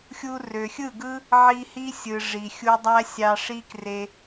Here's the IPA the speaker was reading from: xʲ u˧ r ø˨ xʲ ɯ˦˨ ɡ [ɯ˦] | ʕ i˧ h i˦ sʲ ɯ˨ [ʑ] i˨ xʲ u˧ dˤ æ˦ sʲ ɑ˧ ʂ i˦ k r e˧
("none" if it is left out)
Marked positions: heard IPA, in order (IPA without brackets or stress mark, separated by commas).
ɯ˦, ʐ